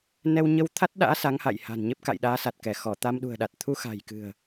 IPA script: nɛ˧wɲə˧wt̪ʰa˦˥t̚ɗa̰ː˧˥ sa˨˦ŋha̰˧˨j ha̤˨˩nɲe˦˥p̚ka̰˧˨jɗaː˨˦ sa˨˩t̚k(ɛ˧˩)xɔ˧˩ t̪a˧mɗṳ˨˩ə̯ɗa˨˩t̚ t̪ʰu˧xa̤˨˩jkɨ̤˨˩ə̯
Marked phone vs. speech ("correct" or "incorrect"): correct